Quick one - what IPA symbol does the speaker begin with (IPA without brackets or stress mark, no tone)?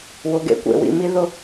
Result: w